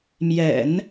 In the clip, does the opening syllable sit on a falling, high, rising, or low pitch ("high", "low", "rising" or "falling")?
low